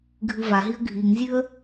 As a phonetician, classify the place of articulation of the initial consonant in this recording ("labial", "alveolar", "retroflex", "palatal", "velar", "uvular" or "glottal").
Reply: velar